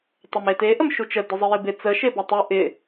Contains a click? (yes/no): no